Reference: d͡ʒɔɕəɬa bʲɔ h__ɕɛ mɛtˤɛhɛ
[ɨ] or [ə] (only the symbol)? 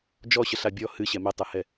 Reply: ɨ